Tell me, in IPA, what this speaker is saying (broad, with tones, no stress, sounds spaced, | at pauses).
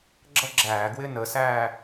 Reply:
ɡ͡ǁ ʌ˥˧ ɡ͡ǁ æː˧˩˧ ɡ w ɪː˥˧ n əː˩˥ s æː˥˧